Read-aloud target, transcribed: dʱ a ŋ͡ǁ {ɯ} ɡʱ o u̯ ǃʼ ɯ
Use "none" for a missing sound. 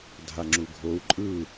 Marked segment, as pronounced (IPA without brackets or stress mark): u